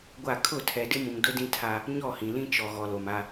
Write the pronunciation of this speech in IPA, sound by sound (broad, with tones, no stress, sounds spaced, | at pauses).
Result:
ɡʷ a˦˨ kʰ ʊ˦˨ tʰ ɛ˨ d ɪ˦ m ũ˨ ŋ d ʊ˦ d ĩ˦ tʰ a˦ | ɲ ɔ˦˨ h ĩ˨ l ĩ˦ t͡ʃ ɔ˨ ɣ ɔ˨ l o˨ m a˦